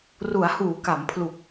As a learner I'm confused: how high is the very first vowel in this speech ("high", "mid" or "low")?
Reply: high